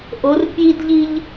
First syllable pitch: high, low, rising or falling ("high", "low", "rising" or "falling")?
rising